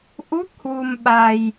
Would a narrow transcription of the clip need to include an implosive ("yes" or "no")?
yes